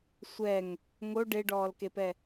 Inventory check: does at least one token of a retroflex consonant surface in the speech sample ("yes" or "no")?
yes